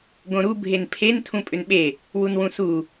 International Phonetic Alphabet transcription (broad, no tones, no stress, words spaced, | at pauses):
ɡõɾu bʱenpʰen tʰũpʼʏnɓe | wunwũsu